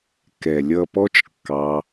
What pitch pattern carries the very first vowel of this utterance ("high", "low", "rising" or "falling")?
low